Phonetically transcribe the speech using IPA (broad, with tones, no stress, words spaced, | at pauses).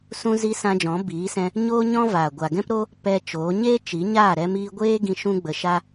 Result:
sũ˧ zi˧ sã˧d͡ʒɔ̃˨˦biː˨˦sɛ̃˧ | ɲoː˦ɲɔ̃˦ vaː˨ɡʷa˨ɡɛ̃˦pɾo˦ | pɛ˧t͡ʃoː˨˦ ɲeː˦t͡ʃi˨˦ɲaː˦˨ ɾɛ˧miː˧ɡʷeː˦ɡĩ˧ ʃũ˦ɡ͡bə˧ʃa˦